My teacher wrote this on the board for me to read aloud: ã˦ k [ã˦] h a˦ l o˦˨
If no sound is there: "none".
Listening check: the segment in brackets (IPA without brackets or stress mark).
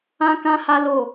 ã˦